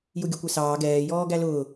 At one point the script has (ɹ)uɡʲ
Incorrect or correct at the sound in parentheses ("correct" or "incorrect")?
incorrect